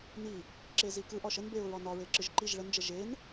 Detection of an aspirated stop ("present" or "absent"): absent